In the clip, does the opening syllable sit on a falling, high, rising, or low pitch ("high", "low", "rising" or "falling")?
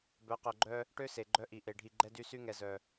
rising